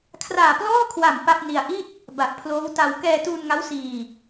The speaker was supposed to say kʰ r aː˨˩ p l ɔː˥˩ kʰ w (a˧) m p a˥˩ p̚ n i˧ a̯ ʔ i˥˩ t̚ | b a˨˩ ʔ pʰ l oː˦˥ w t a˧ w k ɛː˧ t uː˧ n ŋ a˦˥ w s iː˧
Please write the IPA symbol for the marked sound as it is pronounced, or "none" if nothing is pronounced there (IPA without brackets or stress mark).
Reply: a˨˩